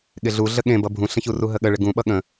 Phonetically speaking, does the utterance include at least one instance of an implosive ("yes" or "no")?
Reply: yes